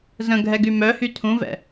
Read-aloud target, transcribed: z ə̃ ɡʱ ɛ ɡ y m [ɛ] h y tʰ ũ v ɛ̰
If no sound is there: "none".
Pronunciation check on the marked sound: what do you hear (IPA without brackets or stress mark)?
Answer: œ